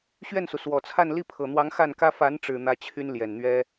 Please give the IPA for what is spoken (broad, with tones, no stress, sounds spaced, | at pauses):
ɕ ɥ ɛ˥˩ n s u˩ s w ɔ˨˩ t͡sʰ a˥˧ n l i˥˩ pʰ ɤ˨˩ n̪ w ɑ˧˥ ŋ x a˥˩ n k ä˥ f a˧˥ n ʈ͡ʂ ɻ̩˨˩ n̪ ä˥ t͡ɕʰ y˥ n l j ɛ˨˩ n n̪ ɥ ɛ˥